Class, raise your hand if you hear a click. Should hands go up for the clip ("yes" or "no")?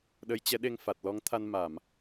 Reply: no